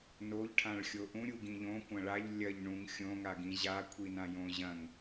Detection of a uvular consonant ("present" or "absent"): absent